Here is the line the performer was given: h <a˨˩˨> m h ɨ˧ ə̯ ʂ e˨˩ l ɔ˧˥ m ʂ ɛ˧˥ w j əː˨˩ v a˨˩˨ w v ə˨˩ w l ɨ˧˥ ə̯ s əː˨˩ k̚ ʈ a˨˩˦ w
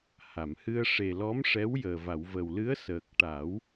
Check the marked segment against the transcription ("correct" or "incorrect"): correct